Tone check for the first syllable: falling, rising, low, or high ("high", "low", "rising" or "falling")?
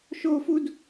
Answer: high